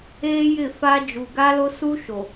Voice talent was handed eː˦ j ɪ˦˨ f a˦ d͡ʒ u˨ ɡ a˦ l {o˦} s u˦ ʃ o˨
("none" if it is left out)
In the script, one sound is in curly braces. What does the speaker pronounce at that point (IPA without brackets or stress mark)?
o˦